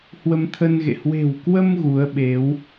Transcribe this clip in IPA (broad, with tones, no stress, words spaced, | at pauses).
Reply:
hwə˧mt̪ʰə˧nɣḛ˧˨ hwe̤˨˩wkwə˧m ɣu˨˦ə̯ɓe˨˦w